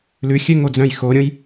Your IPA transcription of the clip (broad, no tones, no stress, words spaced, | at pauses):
lʉxʲø ŋod͡zœ̃jxoɾʲõj